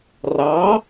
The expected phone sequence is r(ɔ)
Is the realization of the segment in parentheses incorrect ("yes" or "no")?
yes